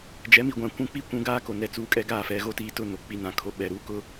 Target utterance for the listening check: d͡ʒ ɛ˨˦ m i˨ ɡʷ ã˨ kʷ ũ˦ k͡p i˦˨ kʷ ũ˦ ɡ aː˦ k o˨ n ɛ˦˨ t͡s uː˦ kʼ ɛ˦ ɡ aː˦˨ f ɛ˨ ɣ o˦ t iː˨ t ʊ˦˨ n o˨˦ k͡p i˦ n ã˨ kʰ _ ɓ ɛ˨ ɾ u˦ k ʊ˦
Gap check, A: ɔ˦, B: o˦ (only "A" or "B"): B